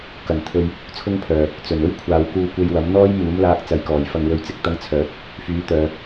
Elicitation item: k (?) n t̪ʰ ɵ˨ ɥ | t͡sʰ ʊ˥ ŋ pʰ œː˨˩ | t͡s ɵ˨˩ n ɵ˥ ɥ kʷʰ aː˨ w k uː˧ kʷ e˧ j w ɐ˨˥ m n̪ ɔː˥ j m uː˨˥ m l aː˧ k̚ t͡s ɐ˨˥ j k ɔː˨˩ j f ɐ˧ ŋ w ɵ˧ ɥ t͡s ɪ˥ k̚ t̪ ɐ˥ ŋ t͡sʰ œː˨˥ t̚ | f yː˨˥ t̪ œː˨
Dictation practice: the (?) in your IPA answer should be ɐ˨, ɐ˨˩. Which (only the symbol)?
ɐ˨˩